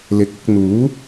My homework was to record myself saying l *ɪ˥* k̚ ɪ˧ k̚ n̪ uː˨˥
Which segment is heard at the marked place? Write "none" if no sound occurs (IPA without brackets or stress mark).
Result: ɪ˨